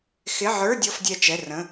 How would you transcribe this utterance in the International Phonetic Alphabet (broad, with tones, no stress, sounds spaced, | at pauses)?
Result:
x ɪ˧˥˧ ʕ ə˞˧˥˧ dʲ ɔ˧˥˧ f dʲ ɛ˧˩ t͡ʃ ɛ˩˧˩ r ə̃˩˧˩